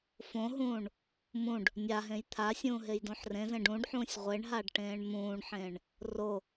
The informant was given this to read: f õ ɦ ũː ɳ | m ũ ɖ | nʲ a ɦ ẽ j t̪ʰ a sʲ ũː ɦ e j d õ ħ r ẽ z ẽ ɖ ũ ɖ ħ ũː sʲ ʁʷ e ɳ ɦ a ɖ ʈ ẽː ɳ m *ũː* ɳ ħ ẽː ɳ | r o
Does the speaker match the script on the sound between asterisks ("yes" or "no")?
yes